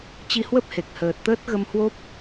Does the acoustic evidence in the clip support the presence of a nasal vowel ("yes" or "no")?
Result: no